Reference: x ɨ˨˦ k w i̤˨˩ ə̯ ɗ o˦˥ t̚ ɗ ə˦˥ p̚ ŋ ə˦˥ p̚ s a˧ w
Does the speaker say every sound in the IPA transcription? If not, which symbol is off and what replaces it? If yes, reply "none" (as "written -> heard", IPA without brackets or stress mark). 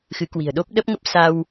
t̚ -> p̚